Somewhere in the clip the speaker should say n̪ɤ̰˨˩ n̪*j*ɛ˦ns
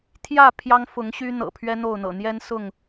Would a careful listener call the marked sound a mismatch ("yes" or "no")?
no